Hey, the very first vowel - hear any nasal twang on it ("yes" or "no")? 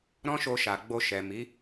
yes